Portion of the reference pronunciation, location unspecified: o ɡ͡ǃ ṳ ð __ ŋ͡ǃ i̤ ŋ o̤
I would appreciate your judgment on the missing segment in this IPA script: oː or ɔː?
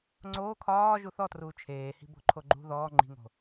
ɔː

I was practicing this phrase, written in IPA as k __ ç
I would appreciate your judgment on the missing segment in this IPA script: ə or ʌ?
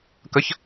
ə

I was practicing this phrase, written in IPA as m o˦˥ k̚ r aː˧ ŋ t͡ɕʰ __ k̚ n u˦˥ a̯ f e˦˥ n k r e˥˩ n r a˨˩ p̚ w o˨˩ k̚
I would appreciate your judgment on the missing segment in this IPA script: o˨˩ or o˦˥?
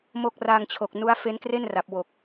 o˨˩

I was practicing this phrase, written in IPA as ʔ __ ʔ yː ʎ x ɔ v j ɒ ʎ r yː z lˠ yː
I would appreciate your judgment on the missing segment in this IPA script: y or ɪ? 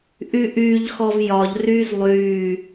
y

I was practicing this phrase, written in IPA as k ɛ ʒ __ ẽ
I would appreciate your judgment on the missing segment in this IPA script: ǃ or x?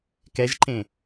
ǃ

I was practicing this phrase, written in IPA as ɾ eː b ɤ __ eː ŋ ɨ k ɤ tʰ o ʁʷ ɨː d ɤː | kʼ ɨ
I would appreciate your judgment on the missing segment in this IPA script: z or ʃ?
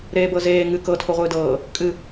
z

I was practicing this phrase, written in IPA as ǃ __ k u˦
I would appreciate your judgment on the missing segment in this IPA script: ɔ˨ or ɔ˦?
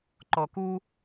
ɔ˨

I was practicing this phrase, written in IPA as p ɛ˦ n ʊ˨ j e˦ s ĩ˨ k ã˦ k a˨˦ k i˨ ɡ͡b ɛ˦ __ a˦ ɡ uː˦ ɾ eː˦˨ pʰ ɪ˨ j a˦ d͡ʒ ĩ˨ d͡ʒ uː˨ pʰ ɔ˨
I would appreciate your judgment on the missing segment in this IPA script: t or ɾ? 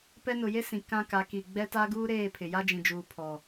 t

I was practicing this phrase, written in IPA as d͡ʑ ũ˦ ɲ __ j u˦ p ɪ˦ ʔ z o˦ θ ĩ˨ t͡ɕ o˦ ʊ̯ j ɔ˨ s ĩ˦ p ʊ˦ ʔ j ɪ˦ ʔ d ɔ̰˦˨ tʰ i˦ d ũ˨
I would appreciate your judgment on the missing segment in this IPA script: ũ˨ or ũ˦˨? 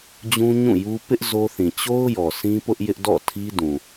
ũ˦˨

